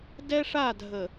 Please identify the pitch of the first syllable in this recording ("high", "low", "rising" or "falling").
high